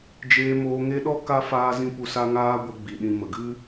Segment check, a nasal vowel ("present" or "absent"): present